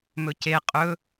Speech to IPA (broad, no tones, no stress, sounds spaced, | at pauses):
m ɵ c e qʼ ɵ